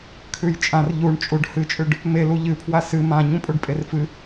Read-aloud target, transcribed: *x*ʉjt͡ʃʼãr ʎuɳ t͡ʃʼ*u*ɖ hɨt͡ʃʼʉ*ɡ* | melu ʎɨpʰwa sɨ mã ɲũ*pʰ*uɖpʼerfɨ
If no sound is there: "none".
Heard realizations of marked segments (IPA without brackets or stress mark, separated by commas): kʰ, u, ɖ, pʼ